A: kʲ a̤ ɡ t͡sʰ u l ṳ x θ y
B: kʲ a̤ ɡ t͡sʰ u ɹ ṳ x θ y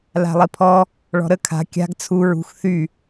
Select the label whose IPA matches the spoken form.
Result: B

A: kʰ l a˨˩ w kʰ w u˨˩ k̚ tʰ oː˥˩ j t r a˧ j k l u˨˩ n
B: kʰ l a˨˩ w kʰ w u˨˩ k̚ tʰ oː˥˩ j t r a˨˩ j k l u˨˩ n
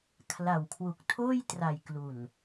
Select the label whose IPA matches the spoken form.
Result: B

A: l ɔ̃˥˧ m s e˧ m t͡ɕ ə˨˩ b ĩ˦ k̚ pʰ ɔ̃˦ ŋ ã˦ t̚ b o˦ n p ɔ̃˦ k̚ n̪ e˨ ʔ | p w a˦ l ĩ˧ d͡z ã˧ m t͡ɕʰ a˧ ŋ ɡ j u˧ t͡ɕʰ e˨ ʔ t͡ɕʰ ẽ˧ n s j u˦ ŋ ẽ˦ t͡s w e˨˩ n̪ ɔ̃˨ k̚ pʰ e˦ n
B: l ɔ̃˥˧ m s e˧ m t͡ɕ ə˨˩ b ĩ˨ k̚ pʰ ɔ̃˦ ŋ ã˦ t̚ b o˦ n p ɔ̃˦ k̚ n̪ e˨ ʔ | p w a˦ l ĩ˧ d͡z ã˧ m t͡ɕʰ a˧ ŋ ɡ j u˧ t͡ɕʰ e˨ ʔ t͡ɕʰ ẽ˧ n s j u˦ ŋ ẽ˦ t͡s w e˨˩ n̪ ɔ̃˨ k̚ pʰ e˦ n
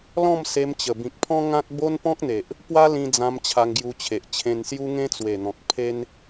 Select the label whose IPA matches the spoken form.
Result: B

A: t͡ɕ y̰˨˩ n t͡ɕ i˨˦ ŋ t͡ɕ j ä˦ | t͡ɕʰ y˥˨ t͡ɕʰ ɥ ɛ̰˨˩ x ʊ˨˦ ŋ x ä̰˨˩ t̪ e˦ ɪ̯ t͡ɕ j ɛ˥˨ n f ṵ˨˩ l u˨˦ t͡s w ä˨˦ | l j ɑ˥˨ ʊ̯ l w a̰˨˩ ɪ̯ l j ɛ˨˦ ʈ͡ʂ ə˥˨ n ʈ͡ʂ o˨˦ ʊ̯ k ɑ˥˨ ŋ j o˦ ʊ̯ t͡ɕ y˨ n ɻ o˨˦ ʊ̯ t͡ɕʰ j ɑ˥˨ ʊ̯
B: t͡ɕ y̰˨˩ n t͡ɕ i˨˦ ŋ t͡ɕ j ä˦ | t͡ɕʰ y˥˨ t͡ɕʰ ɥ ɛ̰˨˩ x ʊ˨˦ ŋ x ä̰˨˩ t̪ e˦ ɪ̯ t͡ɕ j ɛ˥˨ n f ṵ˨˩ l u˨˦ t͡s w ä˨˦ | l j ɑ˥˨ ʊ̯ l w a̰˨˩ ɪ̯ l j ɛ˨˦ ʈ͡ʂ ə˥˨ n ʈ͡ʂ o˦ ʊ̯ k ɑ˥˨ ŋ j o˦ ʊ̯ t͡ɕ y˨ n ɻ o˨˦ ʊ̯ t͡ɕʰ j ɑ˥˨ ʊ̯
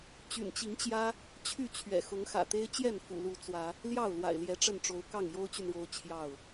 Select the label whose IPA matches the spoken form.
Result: A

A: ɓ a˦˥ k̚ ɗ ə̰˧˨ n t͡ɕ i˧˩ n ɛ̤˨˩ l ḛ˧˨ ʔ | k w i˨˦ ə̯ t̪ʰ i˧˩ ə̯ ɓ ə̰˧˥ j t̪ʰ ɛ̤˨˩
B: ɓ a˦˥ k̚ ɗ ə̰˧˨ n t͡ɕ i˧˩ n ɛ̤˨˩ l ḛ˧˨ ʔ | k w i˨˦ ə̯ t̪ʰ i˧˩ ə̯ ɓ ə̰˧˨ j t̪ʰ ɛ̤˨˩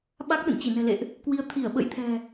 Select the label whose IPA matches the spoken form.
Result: B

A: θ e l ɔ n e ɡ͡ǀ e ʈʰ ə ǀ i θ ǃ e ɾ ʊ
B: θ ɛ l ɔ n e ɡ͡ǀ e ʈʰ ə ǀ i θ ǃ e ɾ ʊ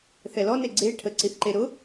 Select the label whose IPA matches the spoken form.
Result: B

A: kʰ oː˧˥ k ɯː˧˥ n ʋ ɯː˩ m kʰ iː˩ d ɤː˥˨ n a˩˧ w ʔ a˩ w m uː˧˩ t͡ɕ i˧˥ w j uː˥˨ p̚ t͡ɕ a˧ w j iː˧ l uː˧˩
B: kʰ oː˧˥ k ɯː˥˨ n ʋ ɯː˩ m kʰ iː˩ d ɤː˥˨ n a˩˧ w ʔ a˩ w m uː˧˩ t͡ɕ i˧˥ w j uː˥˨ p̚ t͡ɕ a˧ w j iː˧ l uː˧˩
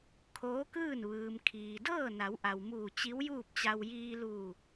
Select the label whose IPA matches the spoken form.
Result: B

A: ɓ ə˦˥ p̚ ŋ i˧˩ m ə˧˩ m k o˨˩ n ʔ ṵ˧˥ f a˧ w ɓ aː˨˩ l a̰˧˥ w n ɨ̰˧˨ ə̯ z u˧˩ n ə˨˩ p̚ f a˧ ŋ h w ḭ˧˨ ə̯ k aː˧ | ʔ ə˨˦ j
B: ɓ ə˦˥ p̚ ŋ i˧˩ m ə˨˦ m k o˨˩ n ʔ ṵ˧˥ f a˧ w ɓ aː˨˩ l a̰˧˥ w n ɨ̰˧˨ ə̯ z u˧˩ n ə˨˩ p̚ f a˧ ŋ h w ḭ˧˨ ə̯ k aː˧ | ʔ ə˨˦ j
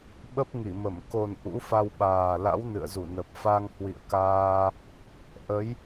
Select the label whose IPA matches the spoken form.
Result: A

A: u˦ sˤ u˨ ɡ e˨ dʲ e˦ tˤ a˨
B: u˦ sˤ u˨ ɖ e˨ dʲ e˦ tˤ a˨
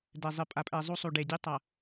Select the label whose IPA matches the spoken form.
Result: B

